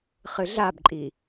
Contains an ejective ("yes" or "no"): yes